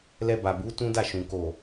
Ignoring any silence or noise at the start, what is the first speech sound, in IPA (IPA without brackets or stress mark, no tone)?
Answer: l